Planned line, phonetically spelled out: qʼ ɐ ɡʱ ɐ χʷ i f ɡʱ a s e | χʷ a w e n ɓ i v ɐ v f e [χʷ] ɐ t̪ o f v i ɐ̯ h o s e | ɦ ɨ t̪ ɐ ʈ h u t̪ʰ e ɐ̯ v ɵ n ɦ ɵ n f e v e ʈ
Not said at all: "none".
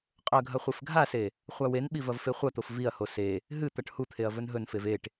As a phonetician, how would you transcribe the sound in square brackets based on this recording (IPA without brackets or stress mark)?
χʷ